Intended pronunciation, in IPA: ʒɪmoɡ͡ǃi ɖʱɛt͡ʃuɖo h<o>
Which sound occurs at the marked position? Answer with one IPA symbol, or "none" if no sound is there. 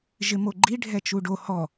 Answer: ɔ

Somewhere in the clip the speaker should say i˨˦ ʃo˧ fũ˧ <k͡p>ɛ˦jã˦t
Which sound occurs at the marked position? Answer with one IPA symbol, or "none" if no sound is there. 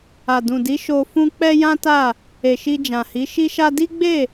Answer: k͡p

